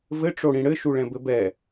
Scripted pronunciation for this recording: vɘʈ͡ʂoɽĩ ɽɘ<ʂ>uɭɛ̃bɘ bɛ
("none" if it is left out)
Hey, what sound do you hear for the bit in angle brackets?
ʃ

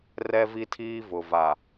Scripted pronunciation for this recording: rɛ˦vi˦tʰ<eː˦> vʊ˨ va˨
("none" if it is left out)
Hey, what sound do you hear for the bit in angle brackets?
iː˦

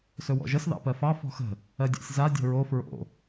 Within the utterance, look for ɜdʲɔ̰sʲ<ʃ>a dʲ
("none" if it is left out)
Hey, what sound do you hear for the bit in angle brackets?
z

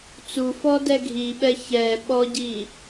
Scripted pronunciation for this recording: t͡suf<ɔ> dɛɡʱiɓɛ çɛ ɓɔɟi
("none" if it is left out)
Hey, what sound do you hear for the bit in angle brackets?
ɔ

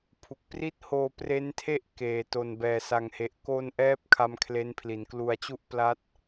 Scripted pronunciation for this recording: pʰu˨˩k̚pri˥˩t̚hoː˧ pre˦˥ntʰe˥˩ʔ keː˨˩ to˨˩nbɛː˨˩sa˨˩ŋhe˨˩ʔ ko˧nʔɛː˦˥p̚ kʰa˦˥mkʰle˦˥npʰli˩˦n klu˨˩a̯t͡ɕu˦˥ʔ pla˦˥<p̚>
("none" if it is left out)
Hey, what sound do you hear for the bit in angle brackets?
t̚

